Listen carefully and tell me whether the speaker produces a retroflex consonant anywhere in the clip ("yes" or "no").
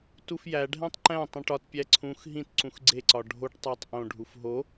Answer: yes